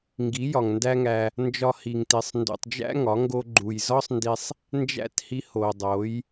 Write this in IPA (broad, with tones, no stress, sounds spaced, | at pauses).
ŋ ɡ i˨˦ j ɒ˨ ŋ n d æ˦ ŋ æ˧ | n d͡ʒ ɒ˧ h i˨ ŋ t i˨ sˤ n d ṵ˨ tˤ d͡ʒ æ̰˦ ŋ ɒ˨˦ ŋ ɡ o˦ ɡ͡ǃ u˧ j z ɒ˦ sˤ n d i˧ sˤ | n d͡ʒ æ̰˦ t h i˧ h o˨ dˤ o˨˦ j